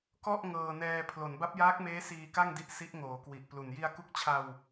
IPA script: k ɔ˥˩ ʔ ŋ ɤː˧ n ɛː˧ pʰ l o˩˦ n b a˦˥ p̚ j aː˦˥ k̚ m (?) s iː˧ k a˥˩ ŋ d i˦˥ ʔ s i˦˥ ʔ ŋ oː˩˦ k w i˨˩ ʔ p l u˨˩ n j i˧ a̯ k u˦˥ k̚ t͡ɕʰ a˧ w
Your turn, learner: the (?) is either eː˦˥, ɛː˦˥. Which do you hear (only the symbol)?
eː˦˥